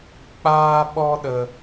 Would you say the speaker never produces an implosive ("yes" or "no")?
no